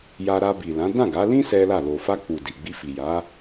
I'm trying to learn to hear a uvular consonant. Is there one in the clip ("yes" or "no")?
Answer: no